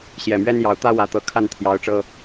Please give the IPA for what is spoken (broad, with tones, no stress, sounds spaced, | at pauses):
ɕ j ɛ˨˩ m ɥ ɛ˦ n j ɑ˨˩ ʊ̯ t̪ ä˦ w ä˨˦ t̪ ɤ˨˩ kʰ a˥˨ n t̪ʰ j ɑ˨˦ ʊ̯ ʈ͡ʂ ɤ˦